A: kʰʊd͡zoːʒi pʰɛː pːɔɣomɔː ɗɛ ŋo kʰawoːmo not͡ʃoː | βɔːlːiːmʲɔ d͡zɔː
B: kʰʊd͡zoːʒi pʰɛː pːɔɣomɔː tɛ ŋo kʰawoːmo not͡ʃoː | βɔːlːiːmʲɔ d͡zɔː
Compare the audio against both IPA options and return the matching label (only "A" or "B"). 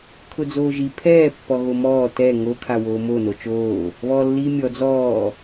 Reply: B